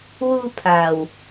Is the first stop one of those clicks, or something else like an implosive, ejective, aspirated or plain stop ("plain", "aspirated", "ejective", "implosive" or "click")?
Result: aspirated